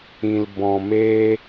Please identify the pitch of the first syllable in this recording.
low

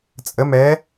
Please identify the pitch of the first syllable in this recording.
rising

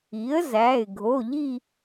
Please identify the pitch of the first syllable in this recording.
rising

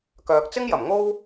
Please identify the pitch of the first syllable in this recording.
low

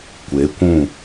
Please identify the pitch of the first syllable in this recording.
rising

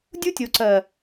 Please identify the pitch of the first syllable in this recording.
high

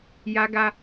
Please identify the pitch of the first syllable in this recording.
high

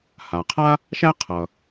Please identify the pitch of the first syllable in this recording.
low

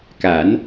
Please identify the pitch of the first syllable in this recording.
rising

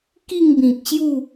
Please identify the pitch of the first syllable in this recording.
falling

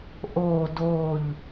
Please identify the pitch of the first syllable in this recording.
falling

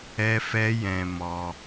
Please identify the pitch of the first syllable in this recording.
high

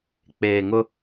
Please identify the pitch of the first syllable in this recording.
low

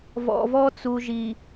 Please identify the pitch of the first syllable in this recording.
low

